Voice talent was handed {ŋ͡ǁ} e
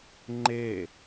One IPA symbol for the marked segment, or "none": ŋ͡ǃ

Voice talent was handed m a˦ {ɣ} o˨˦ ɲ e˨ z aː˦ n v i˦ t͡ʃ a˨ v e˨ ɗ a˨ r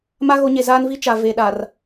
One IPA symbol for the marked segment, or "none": ɣ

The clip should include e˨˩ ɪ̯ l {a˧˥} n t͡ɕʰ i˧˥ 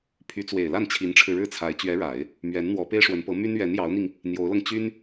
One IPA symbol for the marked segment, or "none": a˥˩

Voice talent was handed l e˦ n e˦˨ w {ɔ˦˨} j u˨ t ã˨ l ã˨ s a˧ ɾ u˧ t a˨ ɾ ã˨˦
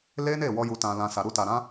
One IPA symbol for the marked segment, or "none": ɔ˧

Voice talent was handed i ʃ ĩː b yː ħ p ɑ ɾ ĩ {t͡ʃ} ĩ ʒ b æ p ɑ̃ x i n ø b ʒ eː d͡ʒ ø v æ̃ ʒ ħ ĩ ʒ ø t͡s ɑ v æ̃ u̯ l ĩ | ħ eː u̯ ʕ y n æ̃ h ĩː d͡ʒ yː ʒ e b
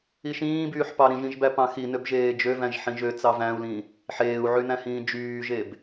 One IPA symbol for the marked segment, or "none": ʒ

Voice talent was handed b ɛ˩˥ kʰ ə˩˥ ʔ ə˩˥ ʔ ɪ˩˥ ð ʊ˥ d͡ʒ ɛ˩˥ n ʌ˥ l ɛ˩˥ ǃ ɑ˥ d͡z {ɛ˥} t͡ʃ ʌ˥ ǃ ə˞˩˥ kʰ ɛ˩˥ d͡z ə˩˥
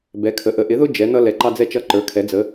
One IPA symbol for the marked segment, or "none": ɛ˥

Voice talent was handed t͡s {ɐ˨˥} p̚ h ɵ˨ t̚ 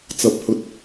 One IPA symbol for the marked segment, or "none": ɐ˨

